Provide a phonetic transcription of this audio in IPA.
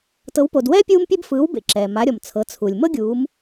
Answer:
t ɤ˩˧ w p o˩ d w ɛː˥ pʲ uː˧ m pʲ e˧ b f ɯː˩˧ w b ḛ˩ ǁ ɛː˩ m a˩˧ ɾʲ ɔ˩ m t͡sʰ ɤ˩˧ t͡sʰ u˩ lʲ m ɤ˥ ɡʲ uː˩˧ m

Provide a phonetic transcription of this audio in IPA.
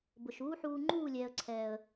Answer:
b ʊ˨ ʃ uː˦ ħ uː˧ ŋ͡ǃ uː˦˨ lʲ ɛː˨ ə̯ ǀʰ ɛː˨ ə̯

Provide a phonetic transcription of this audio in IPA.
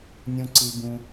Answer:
nʲ ũ˦ ǀ i˦ b ũ˦

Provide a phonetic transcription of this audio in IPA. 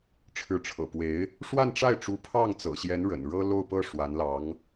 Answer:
ʈ͡ʂʰ ɻ̩˧˥ ʈ͡ʂʰ ɤ̰˨˩ p w e˧˥ ɪ̯ | ʂ w a˥˧ n ʈ͡ʂ a˥˩ ɪ̯ ʈ͡ʂ u˧˥ pʰ ɑ˥˩ ŋ t͡s ɤ̰˨˩ ɕ j ɛ˧˥ n ɻ ə̰˨˩ n ɻ ɤ˥ l o˥˧ ʊ̯ p ɤ˥˩ ʂ w a˧˥ n l ɑ˧˥ ŋ

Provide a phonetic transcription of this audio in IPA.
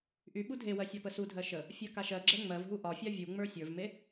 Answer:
ʔ y ɓ u dʱ e w ɜ sʲ ɒ p ə s u dʱ ɜ ʃ ə | fʲ ɜ k a ʃ ɜ ɡ͡ǁ ɜ ŋ͡m ɜ v ɦ u ʔ ɒ fʲ a vʲ u ŋ͡m ə˞ sʲ ə˞ v m e

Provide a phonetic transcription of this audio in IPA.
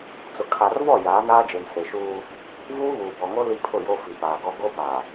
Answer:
t͡s ʊ˨ kʰ a˨ r v ɔ˦˨ j aː˨˦ n aː˦ d͡ʒ e˨ m s e˨ ʃ uː˦ | v uː˦ β uː˨ b ɔ˨ ŋ o˦ l i˦ pʰ ʊ˦˨ j o˦ f i˨ p aː˨ ɡ ɔ˦ ɡ o˦ p a˨

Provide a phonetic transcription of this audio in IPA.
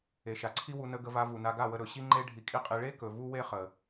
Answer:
e˨ ʃ a˨ ǀʰ i˦ w u˧ n ə˧ ɡ ə˧ v a˧ v u˨ n a˧ ɡ a˦˨ w ə˧ ɾ ɵ˨ ɕ i˦ ŋ͡ǃ e˦ ɖʱ i˧ kʼ i˦ qʼ i˧ ɭ e˦ k ɵ˨ v u˦ w e˦ χ ə˨

